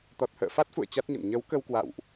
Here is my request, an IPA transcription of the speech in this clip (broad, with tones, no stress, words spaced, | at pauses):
t̪ɔ˨˩t̚hə̰ː˧˨ fa˦˥t̚fṵ˧˨ə̯ t͡ɕa˦˥t̚ɲə̰˧˨n ɲə˨˦wkə˧wkwa̰˧˨wʔ